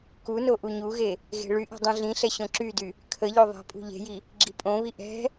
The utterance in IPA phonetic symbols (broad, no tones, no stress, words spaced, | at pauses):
kuno ʔuɲuɣe | ɣe̤ɭyʔe̤ dˤĩɮĩɬɛ ɕõǁydy | kʰə ʎoðˤɛ̤pʼṳ ʎe̤ji | ɡ͡ǁipʼõβi ʔɛ̤